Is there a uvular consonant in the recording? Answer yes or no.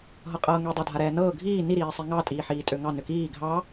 yes